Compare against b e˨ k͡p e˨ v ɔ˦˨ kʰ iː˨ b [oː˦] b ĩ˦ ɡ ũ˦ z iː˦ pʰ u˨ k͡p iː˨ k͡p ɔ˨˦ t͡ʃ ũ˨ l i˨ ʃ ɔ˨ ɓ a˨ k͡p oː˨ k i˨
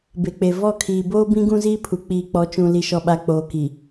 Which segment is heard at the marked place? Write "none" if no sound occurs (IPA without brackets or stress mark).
oː˦